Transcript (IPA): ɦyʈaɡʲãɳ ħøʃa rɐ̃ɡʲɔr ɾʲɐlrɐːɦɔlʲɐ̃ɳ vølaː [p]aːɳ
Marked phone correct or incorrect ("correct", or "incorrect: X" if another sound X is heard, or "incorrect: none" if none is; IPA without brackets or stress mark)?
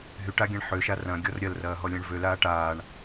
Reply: incorrect: ʈ